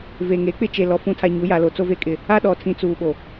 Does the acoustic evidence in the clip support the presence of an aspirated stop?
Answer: yes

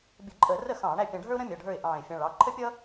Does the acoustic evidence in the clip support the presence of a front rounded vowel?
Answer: no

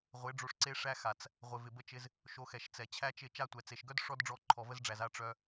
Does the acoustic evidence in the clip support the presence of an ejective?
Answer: no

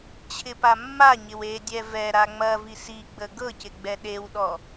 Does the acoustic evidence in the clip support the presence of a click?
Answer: no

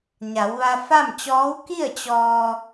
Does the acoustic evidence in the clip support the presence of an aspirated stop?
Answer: no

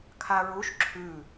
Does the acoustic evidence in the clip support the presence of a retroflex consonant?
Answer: no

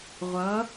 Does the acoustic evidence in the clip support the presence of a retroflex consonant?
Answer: no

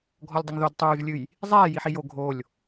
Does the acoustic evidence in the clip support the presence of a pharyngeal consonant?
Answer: yes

